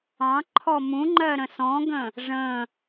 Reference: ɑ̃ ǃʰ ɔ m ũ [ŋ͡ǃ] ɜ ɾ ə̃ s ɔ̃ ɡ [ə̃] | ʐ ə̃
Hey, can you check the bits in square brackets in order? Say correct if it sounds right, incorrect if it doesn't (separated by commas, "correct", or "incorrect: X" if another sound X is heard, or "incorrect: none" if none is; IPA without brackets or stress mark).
correct, correct